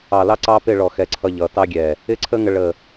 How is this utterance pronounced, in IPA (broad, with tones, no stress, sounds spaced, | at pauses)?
ɑ˨ l ɑ˦ ǀ ɑ˦ p ɪ˦˨ ɭ ɔ˨ x ɛ˦˨ ǀʰ ʌ˦ ʎ ʌ˨˦ t ɑ˦ ɡʲ ɛ˨ | ɪ˦ ǀʰ ə˦ ŋ ə˦ ɭ ə˦˨